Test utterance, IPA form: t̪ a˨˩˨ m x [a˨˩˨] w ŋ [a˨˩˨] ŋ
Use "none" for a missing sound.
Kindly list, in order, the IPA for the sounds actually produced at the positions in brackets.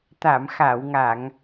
a˨˩˨, a˨˩˨

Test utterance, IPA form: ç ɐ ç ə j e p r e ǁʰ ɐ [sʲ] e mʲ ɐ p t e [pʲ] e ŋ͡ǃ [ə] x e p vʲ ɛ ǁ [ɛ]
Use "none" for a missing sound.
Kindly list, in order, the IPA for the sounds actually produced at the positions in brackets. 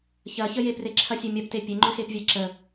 sʲ, pʲ, ʏ, ə

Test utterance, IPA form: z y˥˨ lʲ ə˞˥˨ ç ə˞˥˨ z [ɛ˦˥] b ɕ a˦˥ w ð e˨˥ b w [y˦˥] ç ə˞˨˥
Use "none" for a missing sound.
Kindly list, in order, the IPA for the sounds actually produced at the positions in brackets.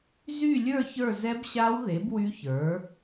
ɛ˦˥, y˦˥

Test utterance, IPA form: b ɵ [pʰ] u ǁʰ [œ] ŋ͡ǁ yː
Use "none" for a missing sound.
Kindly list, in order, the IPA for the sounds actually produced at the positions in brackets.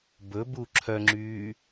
b, œ

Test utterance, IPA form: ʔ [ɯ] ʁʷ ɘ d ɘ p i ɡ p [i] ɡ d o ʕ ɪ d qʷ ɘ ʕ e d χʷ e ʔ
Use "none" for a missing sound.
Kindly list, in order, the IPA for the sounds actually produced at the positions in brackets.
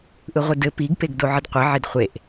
ɯ, e

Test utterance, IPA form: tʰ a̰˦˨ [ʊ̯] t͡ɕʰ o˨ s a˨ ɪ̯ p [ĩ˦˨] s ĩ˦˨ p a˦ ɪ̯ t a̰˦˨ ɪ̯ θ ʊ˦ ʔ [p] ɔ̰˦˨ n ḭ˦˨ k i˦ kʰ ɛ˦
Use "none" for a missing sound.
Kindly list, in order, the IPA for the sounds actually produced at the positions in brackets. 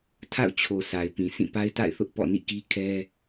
ʊ̯, ĩ˨, p

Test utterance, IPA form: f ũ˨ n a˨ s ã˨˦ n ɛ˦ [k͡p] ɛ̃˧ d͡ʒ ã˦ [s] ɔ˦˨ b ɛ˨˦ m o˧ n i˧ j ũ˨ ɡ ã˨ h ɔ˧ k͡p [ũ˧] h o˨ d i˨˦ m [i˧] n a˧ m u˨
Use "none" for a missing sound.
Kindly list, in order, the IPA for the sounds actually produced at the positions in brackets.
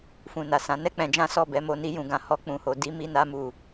k͡p, s, ũ˨, i˧

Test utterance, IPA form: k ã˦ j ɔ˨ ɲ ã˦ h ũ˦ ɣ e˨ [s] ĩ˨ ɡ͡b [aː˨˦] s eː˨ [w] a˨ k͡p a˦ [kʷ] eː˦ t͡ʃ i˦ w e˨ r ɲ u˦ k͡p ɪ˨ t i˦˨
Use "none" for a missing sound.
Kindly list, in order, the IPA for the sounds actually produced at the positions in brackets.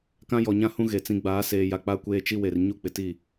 t͡s, aː˨˦, j, kʷ

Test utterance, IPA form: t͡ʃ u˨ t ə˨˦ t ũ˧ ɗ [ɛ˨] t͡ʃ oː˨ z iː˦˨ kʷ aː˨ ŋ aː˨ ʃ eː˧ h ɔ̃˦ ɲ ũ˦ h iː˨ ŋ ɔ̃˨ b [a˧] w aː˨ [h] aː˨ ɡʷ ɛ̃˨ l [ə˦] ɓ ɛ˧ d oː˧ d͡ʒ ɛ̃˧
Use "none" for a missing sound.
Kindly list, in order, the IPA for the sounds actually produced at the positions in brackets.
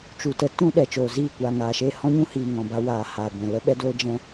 ɛ˨, a˧, h, ə˧

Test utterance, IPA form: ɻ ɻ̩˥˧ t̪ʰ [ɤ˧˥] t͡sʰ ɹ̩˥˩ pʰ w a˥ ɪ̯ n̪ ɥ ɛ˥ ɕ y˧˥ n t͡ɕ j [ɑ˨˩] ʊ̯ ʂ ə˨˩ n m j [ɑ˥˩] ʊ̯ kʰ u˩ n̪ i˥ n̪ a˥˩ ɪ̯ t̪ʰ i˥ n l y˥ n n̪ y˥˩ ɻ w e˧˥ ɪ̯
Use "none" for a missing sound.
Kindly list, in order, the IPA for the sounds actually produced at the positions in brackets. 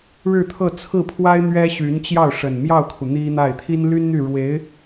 ɤ˥˧, ɑ˥˩, ɑ˥˩

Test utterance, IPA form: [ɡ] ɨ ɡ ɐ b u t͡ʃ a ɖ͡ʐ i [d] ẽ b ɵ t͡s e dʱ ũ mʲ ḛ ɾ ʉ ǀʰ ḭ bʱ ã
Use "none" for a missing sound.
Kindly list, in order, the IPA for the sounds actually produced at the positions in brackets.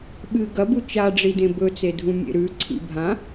ɓ, d

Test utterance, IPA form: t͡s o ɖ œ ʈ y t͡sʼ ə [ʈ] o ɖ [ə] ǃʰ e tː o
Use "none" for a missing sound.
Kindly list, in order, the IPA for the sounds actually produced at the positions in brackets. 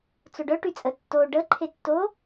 tː, ə

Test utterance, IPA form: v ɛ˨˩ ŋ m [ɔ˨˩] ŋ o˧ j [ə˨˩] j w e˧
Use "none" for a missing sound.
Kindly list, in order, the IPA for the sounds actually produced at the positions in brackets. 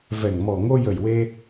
ɔ˨˩, ə˨˩

